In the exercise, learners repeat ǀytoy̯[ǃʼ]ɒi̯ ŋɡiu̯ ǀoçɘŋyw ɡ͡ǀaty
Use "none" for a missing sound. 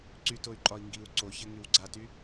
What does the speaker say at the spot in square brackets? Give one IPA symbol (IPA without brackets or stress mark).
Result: ǃʼ